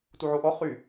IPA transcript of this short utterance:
t u ʕ o ʔ ɔ χ y

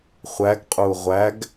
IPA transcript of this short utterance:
χʷ æ ɡ qʼ u ʁʷ æ ɡ

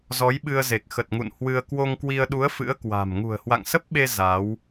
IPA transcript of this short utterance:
z ɔ˨˦ j ɓ ɨ˧ ə̯ z e˨˩ k̚ x ə˨˩ t̚ ŋ ṵ˧˨ n h w ɨ˧ ə̯ k w o˧ ŋ k w i˧ ə̯ ɗ u˨˦ ə̯ f ɨ̰˧˥ ə̯ k w a̤˨˩ m ŋ ṳ˨˩ ə̯ h w a̰˧˨ ŋ s ə˦˥ p̚ ɓ e˧ z a˨˦ w

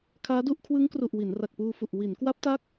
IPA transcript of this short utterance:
kʰ aː˦˥ d u˥˩ ʔ kʰ w ɯ˦˥ ŋ k r u˨˩ ʔ w i˩˦ n r a˨˩ k̚ p uː˧ f u˨˩ ʔ w i˩˦ n k w a˦˥ p̚ t a˦˥ k̚

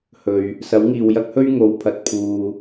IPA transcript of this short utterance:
h ɵ˨ ɥ | s ɐ˨˥ w ŋ iː˨ w j ɐ˥ k̚ h ɵ˥ ɥ ŋ o˨˥ w pʰ ɐ˨ t̚ pʰ uː˨

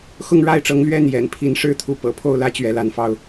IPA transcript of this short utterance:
x ʊ˥˨ ŋ ɻ a˥˨ ɪ̯ ʈ͡ʂ ɤ˨˦ ŋ l ɥ ɛ˥˨ n j ɛ̰˨˩ n pʰ i˨˦ n ʂ ɻ̩˦ t̪ʰ u˨˦ p ɤ̰˨˩ pʰ o˥˨ ʊ̯ l ä˥˨ t͡ɕ ɥ ɛ˨˦ l a˨˦ n f ɑ˧ ʊ̯

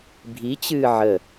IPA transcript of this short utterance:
bʱ i t͡ɕ ɨː ʕ ə

